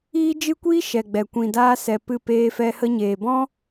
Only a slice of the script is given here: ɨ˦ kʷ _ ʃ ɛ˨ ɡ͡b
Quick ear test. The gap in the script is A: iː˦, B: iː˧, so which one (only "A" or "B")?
A